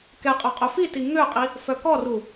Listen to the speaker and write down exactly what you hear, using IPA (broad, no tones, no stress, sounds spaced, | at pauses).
k ɛ qʼ œ qʼ œ f i t i ŋ ø qʼ i | f œ k ɔ r u